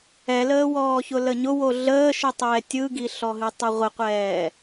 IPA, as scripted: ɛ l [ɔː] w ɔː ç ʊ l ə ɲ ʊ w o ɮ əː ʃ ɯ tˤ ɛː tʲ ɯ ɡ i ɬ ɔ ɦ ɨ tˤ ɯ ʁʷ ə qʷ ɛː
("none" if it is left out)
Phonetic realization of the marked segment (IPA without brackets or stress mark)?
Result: əː